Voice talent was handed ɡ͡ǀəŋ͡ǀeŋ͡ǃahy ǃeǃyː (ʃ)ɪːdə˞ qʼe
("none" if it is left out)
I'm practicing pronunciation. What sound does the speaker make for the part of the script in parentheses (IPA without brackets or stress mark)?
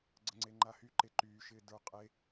ʃ